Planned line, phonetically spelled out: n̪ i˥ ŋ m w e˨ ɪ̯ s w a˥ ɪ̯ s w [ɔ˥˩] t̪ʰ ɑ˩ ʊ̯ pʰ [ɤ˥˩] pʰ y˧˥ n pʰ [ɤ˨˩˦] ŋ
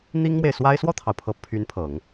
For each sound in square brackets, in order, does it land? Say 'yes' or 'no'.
yes, no, yes

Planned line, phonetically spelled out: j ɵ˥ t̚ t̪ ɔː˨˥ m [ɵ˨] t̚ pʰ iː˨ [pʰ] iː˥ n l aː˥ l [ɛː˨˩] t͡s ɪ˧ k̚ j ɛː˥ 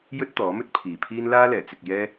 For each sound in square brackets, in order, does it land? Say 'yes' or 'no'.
no, yes, yes

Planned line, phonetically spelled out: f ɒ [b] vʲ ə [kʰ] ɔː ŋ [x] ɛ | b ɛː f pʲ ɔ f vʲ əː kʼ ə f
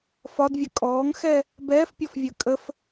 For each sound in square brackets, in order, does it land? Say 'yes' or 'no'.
no, no, yes

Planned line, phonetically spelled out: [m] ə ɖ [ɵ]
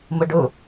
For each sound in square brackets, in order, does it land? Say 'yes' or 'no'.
yes, yes

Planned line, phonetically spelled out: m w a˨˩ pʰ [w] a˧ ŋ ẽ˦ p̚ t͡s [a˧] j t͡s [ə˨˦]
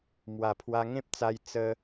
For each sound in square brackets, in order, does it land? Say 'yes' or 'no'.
yes, yes, no

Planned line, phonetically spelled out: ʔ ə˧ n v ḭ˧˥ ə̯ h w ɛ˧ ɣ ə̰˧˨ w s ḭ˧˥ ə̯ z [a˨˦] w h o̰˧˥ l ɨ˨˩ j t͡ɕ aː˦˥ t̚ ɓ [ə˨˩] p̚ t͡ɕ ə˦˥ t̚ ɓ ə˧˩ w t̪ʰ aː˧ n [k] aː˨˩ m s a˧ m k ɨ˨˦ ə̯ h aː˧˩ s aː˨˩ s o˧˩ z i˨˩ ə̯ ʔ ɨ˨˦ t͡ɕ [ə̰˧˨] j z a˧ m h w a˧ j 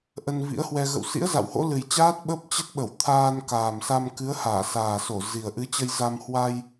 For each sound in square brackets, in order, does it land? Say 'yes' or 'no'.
no, no, yes, no

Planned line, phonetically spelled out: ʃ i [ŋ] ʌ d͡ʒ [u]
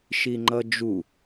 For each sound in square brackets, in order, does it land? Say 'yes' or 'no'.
no, yes

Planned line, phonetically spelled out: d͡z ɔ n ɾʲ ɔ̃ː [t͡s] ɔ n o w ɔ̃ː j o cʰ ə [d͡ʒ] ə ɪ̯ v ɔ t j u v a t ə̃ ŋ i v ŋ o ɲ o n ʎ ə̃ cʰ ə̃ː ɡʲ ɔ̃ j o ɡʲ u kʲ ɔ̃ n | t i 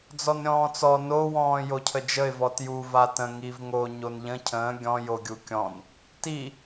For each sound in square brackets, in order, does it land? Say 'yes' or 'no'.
yes, yes

